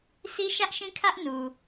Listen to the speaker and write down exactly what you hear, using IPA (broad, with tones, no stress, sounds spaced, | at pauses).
sʰ i˦ ʃ ä˦ ʔ ʃ ĩ˦ kʰ ä˦ ʔ n u˨